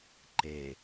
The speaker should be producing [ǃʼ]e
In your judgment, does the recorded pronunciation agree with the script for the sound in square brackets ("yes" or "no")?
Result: no